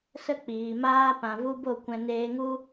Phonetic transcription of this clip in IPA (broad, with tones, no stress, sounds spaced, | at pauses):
s ə˧ k͡p iː˨ m aː˧ p ã˨ v u˧ b o˦˨ kʷ ɛ̃˧ n eː˧ ŋ u˦